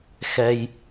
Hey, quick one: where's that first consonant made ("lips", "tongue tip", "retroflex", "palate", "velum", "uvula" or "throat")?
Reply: velum